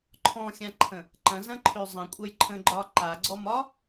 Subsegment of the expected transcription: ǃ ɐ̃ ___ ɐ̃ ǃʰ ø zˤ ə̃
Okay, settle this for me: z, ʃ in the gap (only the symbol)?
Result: z